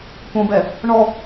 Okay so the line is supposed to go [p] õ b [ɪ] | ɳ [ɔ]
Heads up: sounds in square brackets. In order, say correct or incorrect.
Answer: correct, incorrect, correct

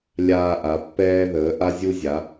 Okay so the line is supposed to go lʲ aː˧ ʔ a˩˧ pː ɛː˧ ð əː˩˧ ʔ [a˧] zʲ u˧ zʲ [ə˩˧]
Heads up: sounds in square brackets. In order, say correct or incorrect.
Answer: correct, incorrect

